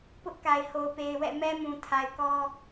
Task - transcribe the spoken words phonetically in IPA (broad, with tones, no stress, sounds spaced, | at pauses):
p ʊ˦ ʔ k a˨ ɪ̯ h o˨ ʊ̯ p e˨ ɪ̯ w ɛ̰˦˨ m ɛ˦ m ũ˨ tʰ a˨ ɪ̯ k ɔ˦